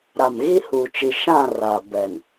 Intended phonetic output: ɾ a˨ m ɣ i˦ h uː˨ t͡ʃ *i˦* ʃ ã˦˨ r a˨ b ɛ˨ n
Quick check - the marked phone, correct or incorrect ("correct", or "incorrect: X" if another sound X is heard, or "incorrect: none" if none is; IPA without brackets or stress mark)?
incorrect: i˨